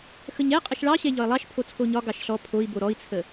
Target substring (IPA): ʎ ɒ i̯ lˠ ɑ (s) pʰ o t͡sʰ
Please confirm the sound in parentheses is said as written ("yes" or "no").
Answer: no